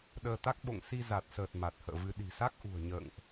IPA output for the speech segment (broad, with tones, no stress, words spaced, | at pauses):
ɗəː˧t̪a˦˥k̚ ɓo̰˧˨ŋ si˧za˨˩t̚səː˨˩t̚ ma˨˩t̚hə̰ː˧˨vɨ˧ ɗi̤˨˩sa˦˥k̚ʔṳ˨˩ə̯ ɲə̰ː˧˨ŋʔ